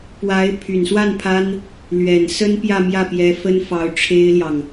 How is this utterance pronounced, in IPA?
p w a˧˥ ɪ̯ pʰ y˨˩ n s w a˥˩ n pʰ a˥ n | l ɥ ɛ˨˩ n s ə˥ n p j ä˥˧ m j ä˥˩ p j ɛ˧˥ f ə˥ n f ɑ˧˥ ʊ̯ ʈ͡ʂʰ e˥ ɪ̯ l j ɑ˨ ŋ

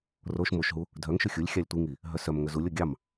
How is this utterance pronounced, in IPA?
r o ʃ m o ʃ ɦ u | dʱ œ ŋ ʃ ɵ xʲ u lʲ xʲ ɑ lʲ tʷ i ŋ i | ɦ œ s œ m ŋ ɵ z u lʲ o ɡʲ ɑ m

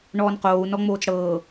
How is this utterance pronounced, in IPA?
ɳ ɔː n q oː u̯ n ɔ ŋ͡m oː t͡s ɽ ɤː

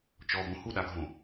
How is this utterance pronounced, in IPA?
t͡ʃ ɔ b õ h u ɗ a ɡʱ õ

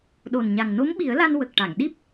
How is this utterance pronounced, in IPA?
ɗ o˨˩ n ɲ a˨˩ ŋ n o˧˥ m ɓ i˨˩˦ ə̯ l a˧ n w ə˨˩ k̚ ʈ a˨˩˨ ŋ ɗ i˦˥ p̚

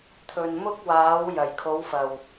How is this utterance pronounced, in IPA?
t̪ʰ ɵ˨ n m ʊ˥ k̚ w aː˨˥ w j ɐ˨˩ j kʰ o˨˥ w f ɐ˨˩ w

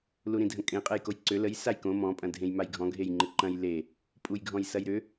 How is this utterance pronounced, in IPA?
l u ɾ ĩ dʱ ə̃ kʼ ẽ qʼ ɛ j k o j ǀ ʏ l ə j s a j k õ m ɔ̃ pʼ ɐ̃ dʱ ẽ j m a j ɡʱ ɔ̃ ɡʱ e j ŋ͡ǃ ɪ ǃ ɐ̃ j l e | pʼ u j ɡʱ ɔ̃ j s ɐ j ɾ ʏ

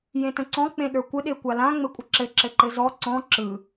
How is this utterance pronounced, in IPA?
j ẽ t ə̃ ǀ ɔ̃ k͡p ẽ ɗ ə˞ kʷ ɘ ɗ e kʷ a l ã ŋ͡m ɘ kʷʼ ə ǁ ɘ ǁ ɘ ǃ ɘ z ɔ ǀ ɔ̃ ǁ ɯ

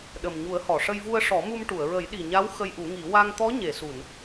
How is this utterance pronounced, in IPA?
ɗ ə˨˩ m ɲ u˨˩˦ ə̯ h ɔ˨˩˨ ʂ ə˧ j v u˧ ə̯ ʂ ɔ˨˩˦ m u˧ m ʈ u˨˩˨ ə̯ ɹ ə˨˩˦ j ɗ i˨˩ ɲ a˧˥ w x ə˧ j ʔ u˨˩˦ ŋ i˨˩˦ w a˧ ŋ t̪ ɔ˧˥ ɲ e˨˩˨ s u˨˩˨ n

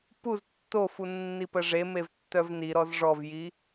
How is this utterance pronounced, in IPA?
p u z tː o f u nː i p ə ʐ e m e v tː œ v n i ɾ ɔ z ʐ ɔ v j i

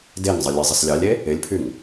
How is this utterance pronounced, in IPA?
d e ŋ zˤ ə lʲ e zˤ ɪ s lʲ ɑ lʲ e | ɪ lʲ pʰ y ŋ

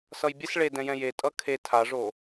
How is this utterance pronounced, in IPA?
s ʌ j bʲ ɛ s ɭ e d ɛ̃ j ɛ̃ j e tʼ ʌ kʰ e tʰ a ʐ o

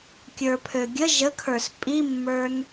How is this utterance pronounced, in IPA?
kʲ ə˞ pʰ ø ɡʲ ə ʒ ə kʰ ə˞ s pʼ i mː ə˞ n

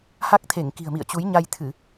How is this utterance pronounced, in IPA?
h a˦˥ k̚ t̪ʰ e˧˩ ŋ k i̤˨˩ ə̯ m ḭ˧˨ ə̯ t͡ɕ u˨˦ j ɲ a˧ j t̪ʰ ɨ˧˩˨

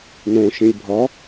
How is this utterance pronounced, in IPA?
n õ ʃ ĩ lʲ bʱ ɒ

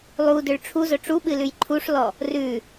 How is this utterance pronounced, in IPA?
lˠ u d ʏ ɭ ʈ͡ʂʰ u z ɵ ʈ͡ʂ u ɓ ɨ l ʉ j ǃʰ u ʂ l ɔ | r ʉ

